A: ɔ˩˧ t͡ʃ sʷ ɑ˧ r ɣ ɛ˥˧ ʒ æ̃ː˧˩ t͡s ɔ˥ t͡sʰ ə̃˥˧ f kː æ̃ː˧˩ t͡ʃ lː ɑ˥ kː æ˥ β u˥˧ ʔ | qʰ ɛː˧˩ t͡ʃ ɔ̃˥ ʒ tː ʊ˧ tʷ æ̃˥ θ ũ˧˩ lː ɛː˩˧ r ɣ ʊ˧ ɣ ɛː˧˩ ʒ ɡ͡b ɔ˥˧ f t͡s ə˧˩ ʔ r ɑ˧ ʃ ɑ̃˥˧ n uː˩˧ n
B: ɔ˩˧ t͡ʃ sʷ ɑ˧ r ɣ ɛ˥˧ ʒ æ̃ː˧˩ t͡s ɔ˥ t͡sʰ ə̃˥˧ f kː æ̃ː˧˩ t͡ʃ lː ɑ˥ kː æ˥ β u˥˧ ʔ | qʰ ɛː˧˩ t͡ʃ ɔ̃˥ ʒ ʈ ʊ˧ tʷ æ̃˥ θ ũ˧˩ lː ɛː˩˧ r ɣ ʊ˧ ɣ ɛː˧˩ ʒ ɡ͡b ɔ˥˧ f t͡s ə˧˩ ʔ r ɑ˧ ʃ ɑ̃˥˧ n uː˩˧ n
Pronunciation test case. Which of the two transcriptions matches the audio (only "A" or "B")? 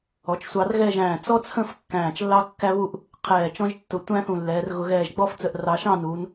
A